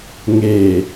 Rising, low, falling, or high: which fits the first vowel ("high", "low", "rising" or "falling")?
low